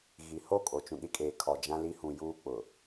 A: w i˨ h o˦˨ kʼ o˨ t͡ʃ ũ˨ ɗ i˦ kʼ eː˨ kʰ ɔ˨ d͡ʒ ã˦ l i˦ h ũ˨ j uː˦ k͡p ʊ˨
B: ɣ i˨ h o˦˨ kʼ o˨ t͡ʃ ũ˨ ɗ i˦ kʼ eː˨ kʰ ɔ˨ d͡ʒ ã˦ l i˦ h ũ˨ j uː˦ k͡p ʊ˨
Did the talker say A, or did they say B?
B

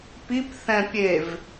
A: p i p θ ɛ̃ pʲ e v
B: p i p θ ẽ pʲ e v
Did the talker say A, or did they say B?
A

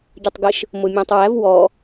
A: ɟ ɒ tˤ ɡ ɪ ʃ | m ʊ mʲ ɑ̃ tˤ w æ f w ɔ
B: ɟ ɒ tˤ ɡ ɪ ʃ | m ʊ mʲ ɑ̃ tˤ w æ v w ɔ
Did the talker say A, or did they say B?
B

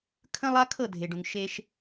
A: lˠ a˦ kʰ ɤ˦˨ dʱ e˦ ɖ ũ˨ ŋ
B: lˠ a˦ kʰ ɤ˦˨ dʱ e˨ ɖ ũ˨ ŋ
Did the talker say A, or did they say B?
B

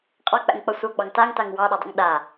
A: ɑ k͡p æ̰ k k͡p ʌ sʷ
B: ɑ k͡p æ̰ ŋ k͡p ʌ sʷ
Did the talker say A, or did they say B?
B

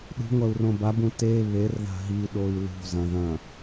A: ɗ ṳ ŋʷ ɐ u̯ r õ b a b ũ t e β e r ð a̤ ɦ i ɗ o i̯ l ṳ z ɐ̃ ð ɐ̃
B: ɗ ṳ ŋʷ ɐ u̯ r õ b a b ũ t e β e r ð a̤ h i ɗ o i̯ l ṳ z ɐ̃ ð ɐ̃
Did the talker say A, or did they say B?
A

